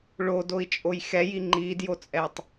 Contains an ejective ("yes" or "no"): yes